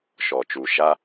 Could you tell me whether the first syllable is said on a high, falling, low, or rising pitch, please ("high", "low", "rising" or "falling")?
low